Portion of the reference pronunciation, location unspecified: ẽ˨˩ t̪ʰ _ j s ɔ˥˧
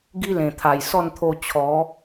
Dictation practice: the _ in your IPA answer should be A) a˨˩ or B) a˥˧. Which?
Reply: A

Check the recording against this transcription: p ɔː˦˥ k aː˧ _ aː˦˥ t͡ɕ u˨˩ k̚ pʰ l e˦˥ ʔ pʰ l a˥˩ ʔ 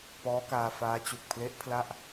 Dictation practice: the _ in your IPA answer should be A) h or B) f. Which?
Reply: B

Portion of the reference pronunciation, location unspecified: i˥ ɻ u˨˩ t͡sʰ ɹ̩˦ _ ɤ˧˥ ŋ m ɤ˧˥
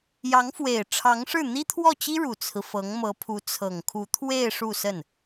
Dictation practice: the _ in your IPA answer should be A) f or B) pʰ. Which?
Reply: A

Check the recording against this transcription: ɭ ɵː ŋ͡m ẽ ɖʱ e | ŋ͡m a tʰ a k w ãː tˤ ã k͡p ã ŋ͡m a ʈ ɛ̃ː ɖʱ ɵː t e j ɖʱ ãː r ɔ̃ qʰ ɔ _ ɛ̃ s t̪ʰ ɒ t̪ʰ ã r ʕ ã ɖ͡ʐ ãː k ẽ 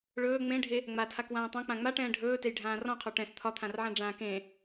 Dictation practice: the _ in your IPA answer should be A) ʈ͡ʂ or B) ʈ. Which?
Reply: B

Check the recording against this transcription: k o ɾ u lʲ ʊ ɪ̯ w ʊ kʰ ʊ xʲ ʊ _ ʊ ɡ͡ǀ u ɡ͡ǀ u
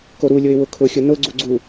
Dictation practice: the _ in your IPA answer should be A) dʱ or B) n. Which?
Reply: B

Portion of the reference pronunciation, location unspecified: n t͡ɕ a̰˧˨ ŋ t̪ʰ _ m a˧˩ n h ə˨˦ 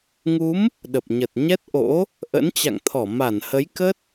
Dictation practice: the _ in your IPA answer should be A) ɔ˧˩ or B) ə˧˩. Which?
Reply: A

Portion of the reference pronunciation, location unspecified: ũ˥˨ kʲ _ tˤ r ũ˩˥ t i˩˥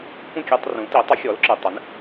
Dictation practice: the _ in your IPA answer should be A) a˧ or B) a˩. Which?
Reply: A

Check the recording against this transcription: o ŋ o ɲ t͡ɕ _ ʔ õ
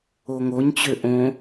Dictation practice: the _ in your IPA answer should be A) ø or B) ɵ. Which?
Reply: A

